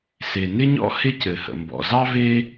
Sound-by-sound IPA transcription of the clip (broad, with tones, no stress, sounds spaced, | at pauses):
s e˩ n ɪ˥ ɲ ɔ̰˥ h ɪ˥ c ɘ˩ h ə̰˩ m b ɔ̰˩ z ɑ˥ v e˥